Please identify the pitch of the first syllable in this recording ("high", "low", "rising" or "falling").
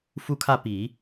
falling